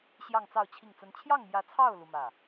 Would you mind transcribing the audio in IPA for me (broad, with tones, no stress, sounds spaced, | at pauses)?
ɕ j ɑ˥˧ ŋ t͡s ɑ˥˧ ʊ̯ t͡ɕʰ i˥˩ ŋ t͡s ə˥ n t͡ɕʰ j ɑ˥˩ ŋ m j ä˧˥ t͡sʰ ɑ˥˩ ʊ̯ l u˥ m ä˥˩